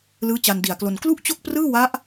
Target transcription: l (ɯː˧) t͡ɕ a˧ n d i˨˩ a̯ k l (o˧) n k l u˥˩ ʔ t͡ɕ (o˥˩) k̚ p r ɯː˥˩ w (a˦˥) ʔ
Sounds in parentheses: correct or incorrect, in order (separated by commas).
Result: incorrect, correct, correct, correct